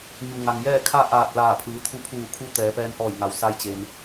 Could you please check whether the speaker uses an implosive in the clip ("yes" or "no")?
no